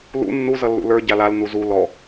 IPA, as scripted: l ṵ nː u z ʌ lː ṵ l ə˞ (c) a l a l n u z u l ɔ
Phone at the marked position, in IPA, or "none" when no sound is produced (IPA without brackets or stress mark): ɟ